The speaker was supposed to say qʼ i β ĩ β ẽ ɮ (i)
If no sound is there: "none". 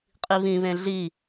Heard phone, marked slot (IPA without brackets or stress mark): i